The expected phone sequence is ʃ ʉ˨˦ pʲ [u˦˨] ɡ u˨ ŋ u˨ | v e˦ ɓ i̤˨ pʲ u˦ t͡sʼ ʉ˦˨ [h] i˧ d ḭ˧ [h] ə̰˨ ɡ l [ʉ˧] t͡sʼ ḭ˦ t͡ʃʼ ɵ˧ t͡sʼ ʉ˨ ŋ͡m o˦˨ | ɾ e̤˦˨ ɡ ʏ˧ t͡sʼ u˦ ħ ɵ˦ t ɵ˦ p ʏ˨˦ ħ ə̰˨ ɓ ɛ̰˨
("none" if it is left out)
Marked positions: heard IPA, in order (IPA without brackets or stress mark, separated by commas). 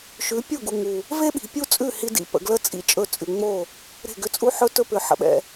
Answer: u˦˨, h, p, ə˧